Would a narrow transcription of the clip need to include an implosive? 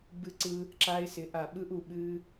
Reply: yes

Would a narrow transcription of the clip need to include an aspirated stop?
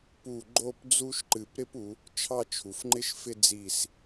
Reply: yes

